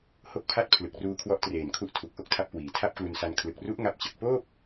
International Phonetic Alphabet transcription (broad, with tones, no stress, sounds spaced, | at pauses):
h o˦˥ k̚ pʰ a˦˥ t̚ pʰ l ɯ˨˩ k̚ r uː˧ kʰ w ɔ˦˥ ʔ t r eː˨˩ n kʰ u˦˥ ʔ tʰ u˨˩ k̚ ʔ o˥˩ k̚ tʰ a˦˥ p̚ k w iː˨˩ tʰ a˥˩ p̚ k l u˧ n s a˧ n kʰ l ɯ˨˩ k̚ r u˦˥ ʔ ŋ a˦˥ p̚ t͡ɕ ɯ˨˩ k̚ p oː˥˩ p̚